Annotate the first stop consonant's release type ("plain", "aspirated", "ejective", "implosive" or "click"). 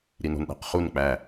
implosive